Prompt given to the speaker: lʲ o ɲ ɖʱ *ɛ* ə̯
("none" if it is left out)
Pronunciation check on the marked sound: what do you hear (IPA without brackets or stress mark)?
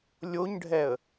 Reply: ɛ